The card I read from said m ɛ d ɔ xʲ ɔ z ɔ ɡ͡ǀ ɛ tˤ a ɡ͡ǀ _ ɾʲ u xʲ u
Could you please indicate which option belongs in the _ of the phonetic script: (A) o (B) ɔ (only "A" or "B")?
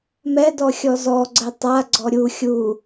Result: B